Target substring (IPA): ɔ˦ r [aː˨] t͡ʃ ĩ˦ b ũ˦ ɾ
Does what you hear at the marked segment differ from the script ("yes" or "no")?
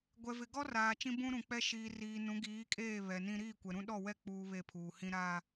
no